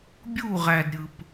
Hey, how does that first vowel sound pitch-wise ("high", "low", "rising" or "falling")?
falling